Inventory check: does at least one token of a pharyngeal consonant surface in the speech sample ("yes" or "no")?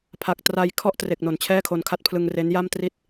no